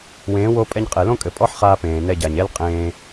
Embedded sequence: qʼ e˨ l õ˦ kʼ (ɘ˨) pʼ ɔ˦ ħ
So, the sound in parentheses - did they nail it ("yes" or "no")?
yes